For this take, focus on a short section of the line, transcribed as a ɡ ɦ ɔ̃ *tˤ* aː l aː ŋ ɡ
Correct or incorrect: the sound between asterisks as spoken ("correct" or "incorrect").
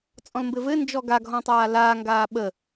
correct